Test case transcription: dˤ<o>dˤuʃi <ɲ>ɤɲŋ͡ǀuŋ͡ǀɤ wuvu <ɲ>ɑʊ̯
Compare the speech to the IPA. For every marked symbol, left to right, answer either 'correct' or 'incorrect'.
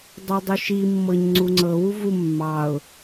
incorrect, incorrect, incorrect

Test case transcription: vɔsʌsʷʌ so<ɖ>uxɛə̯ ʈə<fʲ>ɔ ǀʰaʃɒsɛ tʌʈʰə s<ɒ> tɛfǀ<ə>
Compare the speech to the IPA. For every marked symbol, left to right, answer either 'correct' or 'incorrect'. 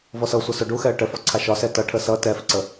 correct, incorrect, incorrect, correct

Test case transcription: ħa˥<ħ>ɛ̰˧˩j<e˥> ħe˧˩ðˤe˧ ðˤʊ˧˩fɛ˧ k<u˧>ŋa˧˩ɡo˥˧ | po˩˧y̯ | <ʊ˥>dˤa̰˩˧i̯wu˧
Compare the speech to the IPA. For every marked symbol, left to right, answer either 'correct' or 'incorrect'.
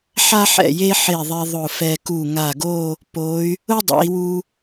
correct, correct, incorrect, correct

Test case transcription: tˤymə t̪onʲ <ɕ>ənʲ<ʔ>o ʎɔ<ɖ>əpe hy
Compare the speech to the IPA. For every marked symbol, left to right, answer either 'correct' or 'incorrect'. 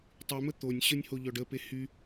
correct, incorrect, correct

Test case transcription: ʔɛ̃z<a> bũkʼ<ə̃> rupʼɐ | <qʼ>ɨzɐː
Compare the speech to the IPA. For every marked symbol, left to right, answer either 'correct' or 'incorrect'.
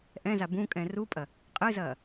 correct, incorrect, correct

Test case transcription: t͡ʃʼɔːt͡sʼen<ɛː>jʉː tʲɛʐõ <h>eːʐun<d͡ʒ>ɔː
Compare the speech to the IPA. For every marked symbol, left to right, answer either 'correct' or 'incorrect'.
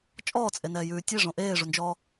correct, incorrect, correct

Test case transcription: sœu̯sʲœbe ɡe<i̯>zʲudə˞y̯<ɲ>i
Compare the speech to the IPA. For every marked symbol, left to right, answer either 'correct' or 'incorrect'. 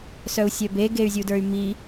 incorrect, incorrect

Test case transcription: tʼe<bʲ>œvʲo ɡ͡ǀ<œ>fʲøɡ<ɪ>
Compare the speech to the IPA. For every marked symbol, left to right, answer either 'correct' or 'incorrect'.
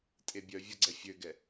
correct, incorrect, incorrect

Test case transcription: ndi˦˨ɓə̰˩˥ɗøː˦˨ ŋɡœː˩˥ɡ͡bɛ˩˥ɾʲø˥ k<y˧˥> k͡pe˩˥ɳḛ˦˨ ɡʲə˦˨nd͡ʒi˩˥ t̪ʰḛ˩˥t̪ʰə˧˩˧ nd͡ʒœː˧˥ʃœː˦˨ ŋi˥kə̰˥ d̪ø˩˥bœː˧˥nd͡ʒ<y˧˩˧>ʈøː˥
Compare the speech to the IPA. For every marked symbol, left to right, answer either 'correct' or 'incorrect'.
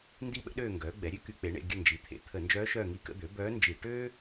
correct, incorrect

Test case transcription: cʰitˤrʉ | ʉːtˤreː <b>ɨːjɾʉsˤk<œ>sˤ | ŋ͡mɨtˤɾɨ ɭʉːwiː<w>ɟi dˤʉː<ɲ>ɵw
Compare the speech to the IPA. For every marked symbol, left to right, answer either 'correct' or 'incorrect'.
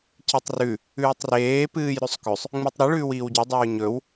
incorrect, incorrect, correct, correct

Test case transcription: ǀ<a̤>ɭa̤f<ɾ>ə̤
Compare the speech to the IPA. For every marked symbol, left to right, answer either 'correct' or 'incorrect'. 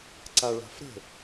incorrect, correct

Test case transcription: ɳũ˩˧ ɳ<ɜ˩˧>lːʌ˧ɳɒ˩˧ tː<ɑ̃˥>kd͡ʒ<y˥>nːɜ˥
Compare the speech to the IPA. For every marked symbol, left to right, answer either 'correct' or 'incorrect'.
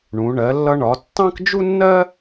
correct, correct, incorrect

